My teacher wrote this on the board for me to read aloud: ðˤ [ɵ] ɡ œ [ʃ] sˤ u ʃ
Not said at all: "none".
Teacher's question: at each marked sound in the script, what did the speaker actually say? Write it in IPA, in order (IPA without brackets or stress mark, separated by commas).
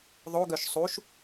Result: o, ʃ